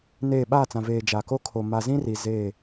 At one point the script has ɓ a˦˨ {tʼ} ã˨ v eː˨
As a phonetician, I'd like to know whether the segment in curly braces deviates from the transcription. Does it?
yes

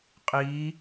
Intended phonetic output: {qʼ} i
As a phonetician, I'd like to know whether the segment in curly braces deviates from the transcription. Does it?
no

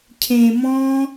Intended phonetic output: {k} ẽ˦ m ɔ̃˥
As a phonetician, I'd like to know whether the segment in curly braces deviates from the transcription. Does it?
yes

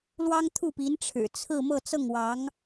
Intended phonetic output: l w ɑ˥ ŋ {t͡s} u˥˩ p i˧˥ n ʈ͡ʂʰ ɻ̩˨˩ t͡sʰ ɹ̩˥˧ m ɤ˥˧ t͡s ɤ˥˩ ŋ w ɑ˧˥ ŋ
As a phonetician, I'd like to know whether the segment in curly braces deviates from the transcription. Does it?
yes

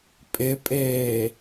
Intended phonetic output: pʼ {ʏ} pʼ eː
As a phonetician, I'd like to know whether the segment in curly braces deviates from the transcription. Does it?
yes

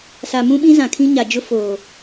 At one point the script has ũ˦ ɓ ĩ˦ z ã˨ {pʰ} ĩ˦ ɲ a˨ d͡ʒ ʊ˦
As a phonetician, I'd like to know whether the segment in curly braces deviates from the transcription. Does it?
yes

